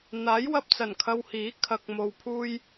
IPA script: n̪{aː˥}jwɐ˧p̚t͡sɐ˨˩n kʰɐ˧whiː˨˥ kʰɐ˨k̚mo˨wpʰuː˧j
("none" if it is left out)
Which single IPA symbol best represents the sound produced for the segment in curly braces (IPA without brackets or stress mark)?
aː˨˥